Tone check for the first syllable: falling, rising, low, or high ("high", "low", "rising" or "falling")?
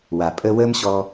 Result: low